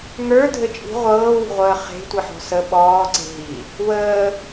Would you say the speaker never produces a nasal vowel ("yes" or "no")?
yes